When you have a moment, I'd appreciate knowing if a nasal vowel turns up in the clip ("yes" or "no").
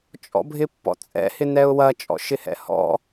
no